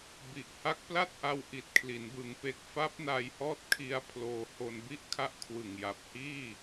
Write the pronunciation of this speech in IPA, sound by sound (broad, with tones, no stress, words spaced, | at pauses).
bi˨˩ʔha˦˥k̚pla˥˩t̚ʔa˧w ʔi˨˩t̚kʰli˩˦n bɯ˩˦ŋpe˨˩k̚ fa˦˥p̚na˧jhɔː˦˥t̚kʰi˧a̯ pʰloː˧ho˧n bi˥˩ʔkʰa˦˥ʔkʰwɯ˨˩ŋja˨˩p̚ hiː˥˩